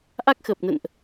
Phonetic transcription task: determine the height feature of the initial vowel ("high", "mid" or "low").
low